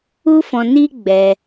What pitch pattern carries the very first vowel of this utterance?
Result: high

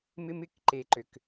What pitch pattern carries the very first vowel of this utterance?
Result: high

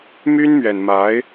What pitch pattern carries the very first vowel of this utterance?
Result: high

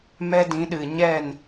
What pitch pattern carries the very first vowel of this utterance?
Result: high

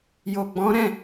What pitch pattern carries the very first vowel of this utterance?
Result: low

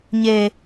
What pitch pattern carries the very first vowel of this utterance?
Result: high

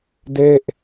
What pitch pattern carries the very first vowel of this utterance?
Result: falling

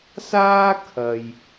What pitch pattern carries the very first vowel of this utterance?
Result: high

